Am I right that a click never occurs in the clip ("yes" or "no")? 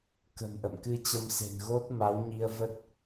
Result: yes